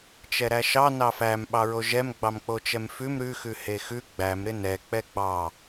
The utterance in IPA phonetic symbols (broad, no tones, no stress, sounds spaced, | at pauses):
t͡ʃ ɛ ɾ æ ʃ ɑ n ɑ f æ m ɓ ɑ ɹ o ʒ ɛ m ɡ͡b ɑ m k͡p o t͡ʃ ɛ m f ʉ m ɾ ʉ x ʉ h e x ʉ ɡ͡b æ m ɾ ɪ n ɛ k͡p ɛ ɡ͡b ɑ